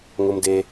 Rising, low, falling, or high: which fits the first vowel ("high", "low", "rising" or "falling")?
high